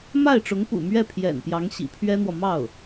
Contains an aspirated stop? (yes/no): yes